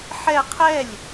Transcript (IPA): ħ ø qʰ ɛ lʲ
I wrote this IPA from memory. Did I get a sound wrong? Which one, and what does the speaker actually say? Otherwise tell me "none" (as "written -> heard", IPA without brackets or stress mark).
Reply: ø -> ɛ